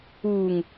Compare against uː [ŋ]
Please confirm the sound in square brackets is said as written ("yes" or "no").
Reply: yes